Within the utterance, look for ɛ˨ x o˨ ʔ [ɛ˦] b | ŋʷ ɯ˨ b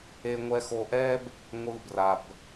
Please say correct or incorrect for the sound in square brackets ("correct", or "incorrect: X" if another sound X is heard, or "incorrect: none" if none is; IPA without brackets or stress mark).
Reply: correct